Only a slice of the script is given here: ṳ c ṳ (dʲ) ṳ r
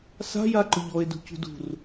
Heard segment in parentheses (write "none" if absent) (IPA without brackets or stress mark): d